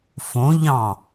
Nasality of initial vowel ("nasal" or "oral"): nasal